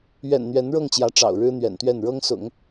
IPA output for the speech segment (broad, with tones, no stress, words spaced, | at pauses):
ɥɛ̰˨˩nn̪ɥɛ˧˥n ɻɤ˥˩ŋt͡ɕjä˧˥ ʈ͡ʂɑ̰˨˩ʊ̯ɻɻ̩˥n̪ɥɛ̰˨˩nt̪ɥɛ˥˩n ɻɤ˥ŋsʊ̰˨˩˦ŋ